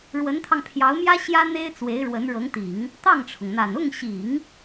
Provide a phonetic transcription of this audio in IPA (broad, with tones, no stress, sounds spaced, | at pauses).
ɻ w ə˧˥ n t̪ʰ ɑ˧ ŋ pʰ j ɑ˧˥ ʊ̯ m j ä˥ ɕ j ä˥ n̪ e˥ ɪ̯ t͡s w e˧˥ ɪ̯ ɻ w ə˧˥ n ɻ ɤ˧˥ ŋ t̪ i˨˩˦ ŋ | t̪ ɑ˥˩ ŋ ʈ͡ʂʰ ʊ˩ ŋ n̪ a˨˩ n ʊ˥˩ ŋ ɕ i˨˩˦ ŋ